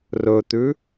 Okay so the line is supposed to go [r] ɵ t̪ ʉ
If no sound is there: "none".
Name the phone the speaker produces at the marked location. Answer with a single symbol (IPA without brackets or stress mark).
r